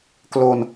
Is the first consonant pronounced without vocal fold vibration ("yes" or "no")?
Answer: yes